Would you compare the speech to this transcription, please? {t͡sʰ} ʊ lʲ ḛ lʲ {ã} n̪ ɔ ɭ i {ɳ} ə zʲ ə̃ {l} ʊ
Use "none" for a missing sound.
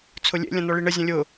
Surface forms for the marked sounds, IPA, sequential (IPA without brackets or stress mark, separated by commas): t͡sʰ, ã, ɳ, lʲ